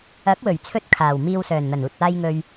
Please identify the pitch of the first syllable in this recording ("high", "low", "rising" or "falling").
rising